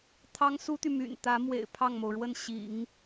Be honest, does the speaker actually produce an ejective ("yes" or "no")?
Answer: no